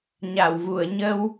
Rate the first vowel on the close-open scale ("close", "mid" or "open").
open